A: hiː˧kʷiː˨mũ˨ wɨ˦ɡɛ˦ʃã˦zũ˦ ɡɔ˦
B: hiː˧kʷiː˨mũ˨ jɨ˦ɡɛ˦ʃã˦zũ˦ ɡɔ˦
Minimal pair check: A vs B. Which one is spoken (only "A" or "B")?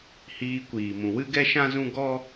A